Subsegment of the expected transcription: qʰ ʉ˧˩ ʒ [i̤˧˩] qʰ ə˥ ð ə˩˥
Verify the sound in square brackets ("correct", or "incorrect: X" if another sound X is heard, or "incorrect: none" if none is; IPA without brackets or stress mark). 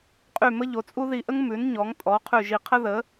incorrect: i˧˩